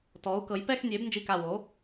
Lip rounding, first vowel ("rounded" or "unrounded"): rounded